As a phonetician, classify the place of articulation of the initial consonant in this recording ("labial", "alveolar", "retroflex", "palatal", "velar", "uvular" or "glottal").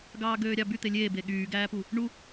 velar